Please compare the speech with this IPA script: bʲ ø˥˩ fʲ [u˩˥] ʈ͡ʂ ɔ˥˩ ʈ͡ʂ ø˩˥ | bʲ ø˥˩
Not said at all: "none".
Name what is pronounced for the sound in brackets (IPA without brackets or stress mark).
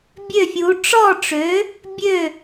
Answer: u˩˥